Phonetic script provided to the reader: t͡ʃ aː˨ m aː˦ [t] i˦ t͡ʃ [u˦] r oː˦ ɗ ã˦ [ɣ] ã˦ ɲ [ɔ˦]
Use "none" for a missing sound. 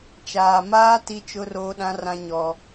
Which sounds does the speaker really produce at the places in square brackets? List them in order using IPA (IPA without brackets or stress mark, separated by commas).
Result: t, ʊ˦, r, ɔ˦